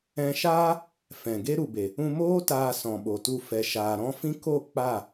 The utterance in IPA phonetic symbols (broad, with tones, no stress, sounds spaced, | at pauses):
ɛ̃˧ ʃ aː˦ | f ɛ̃˨ ɡ e˦ ɾ u˨ b e˨ | ũ˧ m oː˦ t aː˧ s ɔ̃˨ ɓ o˨ t u˧ f ɛ˨ ʃ aː˨ ɾ ɔ̃˦ f ĩ˦ k o˦˨ k͡p a˦˨